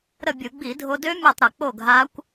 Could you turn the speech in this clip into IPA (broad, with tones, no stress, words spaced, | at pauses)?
ɾə˥˨bʲɯ˧˩˧ ɡ͡bi˧˩˧dʱo˧dø˦˥ mʲʌ˥˨tˤɾʌ˧˩˧ k͡po˥˨ɡʱa˦˥kʷ